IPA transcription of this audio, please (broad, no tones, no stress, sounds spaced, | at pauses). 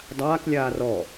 dˤ aː k lʲ aː r ɔ